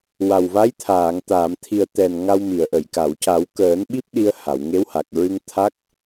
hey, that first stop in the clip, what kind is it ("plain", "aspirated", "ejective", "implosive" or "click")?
aspirated